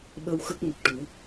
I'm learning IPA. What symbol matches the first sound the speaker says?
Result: ɓ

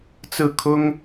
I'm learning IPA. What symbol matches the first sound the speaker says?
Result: t͡s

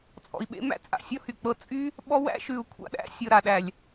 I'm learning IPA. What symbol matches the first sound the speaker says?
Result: t͡sʼ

